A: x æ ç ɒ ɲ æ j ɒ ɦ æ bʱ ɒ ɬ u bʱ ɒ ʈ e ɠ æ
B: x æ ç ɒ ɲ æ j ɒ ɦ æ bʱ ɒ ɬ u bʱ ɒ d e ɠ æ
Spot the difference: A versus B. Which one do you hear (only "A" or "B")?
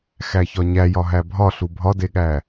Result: B